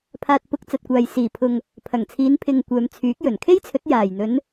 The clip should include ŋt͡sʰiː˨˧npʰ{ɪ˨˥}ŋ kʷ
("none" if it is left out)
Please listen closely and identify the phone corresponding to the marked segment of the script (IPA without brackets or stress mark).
ɪ˨